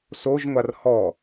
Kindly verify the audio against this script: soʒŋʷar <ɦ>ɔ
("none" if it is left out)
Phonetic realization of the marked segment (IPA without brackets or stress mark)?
h